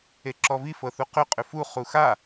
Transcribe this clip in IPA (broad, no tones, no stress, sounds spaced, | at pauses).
e ǁ ɔ v i f ɤ θ u q ʏ qʼ ʏ f u χ u x a